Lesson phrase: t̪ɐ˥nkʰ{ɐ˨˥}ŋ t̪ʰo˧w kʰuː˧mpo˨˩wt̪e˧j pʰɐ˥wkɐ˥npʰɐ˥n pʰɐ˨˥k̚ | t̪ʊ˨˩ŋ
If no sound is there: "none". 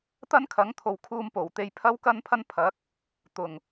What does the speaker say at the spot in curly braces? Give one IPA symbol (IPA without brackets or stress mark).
ɐ˨˥